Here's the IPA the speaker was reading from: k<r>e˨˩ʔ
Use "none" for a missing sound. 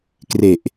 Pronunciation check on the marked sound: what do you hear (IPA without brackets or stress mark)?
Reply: r